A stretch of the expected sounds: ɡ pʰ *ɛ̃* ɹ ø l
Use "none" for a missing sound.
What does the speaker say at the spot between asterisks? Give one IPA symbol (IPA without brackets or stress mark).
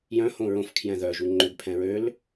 ɛ̃